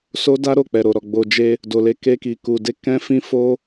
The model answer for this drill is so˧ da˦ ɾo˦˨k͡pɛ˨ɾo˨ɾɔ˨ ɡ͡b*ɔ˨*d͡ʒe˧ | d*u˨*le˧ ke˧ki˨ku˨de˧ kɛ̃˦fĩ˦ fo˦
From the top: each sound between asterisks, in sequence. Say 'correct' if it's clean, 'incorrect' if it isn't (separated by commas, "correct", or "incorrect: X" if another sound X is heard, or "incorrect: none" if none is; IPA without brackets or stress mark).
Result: incorrect: o˨, incorrect: o˨